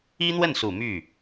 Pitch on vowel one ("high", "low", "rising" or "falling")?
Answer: high